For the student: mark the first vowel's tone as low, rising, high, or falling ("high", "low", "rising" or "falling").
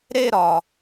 falling